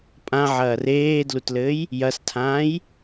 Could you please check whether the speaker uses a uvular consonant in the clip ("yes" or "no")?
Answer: no